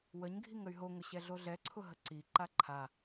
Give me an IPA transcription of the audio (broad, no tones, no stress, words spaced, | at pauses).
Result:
wəɲɡʱiŋ əy̯ɦoŋʊ ɕɛɮoɮɛǀʰʊ ɦəǀiǃa ǃʰa